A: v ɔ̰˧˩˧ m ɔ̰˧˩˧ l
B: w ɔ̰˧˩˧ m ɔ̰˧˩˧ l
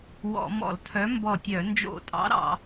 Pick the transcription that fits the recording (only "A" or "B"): B